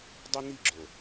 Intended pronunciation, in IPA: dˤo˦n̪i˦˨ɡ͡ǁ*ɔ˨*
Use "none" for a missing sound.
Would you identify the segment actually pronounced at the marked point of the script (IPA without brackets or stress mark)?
o˨